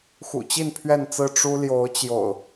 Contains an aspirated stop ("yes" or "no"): yes